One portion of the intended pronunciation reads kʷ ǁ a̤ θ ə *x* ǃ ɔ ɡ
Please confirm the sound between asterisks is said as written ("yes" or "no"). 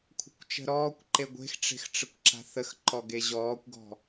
yes